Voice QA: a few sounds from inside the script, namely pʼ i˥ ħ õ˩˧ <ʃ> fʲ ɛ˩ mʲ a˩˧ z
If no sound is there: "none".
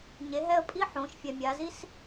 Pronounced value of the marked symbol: ʃ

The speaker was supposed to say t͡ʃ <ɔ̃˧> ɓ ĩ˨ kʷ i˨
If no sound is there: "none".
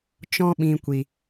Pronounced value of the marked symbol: ɔ̃˧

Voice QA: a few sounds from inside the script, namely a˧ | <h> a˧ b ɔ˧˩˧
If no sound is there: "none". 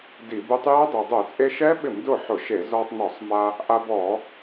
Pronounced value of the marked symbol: ʔ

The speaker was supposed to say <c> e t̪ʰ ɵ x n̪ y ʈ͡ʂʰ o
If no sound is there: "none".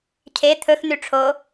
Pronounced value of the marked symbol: cʰ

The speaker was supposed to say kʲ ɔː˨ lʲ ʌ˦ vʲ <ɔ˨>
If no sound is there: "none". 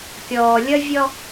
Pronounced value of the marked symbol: ɔ˦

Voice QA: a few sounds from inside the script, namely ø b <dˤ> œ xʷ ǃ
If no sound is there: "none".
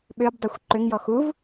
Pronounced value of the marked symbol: dˤ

